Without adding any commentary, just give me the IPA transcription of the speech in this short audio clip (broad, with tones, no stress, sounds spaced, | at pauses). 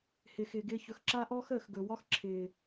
h ɪː˨ x ɪː˨ ɡ ɪː˧ ç ɵ˨ x ǁ a˦ ʔ ɔː˦ x əː˨ x ɡ ɵ˨ w ɒ˦ x ǁʰ ɪː˨